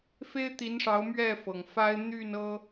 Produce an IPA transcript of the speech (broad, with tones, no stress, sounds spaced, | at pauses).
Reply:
f e˦ ɪ̯ t̪ i˨˦ n ʂ ɑ˨˦ ʊ̯ m ɥ ɛ˥˨ f ɤ˩ ŋ f a˦ ɪ̯ n̪ y˥˨ n ɤ˦